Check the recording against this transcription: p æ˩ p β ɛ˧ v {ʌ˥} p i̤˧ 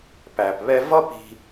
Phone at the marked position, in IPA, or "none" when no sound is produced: ʌ˥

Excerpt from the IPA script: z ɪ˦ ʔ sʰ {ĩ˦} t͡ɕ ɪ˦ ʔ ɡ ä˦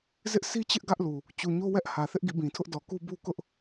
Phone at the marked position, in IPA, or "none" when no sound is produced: i˦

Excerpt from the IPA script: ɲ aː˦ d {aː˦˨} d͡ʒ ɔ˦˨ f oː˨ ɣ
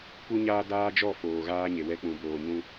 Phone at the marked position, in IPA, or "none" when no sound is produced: aː˦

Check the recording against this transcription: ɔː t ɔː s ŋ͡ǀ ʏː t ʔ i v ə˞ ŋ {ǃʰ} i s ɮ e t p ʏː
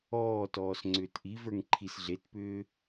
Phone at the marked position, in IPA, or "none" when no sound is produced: ǃʰ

